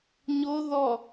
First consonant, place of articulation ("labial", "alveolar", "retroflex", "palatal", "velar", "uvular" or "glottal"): palatal